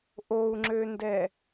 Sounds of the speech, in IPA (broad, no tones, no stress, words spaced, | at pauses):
ʔou̯ŋ͡ǁøndɛ